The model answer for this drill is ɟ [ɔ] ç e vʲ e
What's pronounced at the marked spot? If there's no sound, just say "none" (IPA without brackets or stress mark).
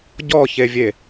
ɔ